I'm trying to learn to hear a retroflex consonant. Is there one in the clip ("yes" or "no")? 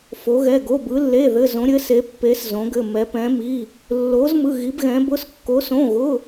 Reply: no